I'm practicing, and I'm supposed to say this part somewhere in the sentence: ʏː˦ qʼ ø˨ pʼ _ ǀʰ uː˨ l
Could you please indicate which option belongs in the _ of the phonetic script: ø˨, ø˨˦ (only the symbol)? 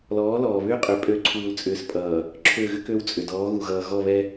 ø˨˦